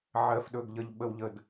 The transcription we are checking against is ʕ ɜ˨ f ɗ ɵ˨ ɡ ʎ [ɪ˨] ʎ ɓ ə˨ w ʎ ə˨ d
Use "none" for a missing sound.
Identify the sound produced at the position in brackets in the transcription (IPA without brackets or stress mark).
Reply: ə˨